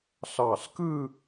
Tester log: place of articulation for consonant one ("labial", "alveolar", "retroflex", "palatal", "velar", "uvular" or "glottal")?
alveolar